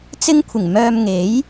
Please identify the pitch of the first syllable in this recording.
high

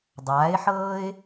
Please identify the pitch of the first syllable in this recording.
rising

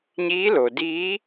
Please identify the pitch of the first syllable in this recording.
rising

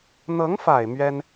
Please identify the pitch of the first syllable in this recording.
rising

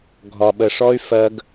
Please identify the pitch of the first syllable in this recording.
low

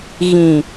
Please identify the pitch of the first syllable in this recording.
low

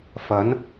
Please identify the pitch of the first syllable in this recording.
rising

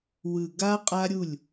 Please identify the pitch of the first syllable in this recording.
low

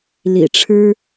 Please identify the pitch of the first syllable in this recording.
low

